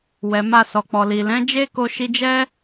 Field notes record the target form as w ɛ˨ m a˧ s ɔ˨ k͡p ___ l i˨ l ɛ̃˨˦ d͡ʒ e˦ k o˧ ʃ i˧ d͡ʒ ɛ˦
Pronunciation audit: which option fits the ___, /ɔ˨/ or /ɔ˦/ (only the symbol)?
ɔ˨